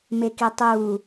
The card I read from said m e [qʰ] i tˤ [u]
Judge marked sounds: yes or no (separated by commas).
no, no